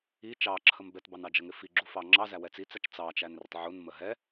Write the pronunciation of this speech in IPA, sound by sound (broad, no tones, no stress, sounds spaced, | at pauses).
i t͡ʃ ɑ ǁʰ ə m b ɛ t b ɑ n ɑ d͡ʒ ə ŋ ɪ f i ɡ͡ǁ u f ɑ ŋ͡ǁ ɑ z æ w ɛ t͡s i t͡s æ t͡ʃ t͡s ɑ t͡ʃ æ n r ɪ tˤ ʕ u n m ə ɦ ɛ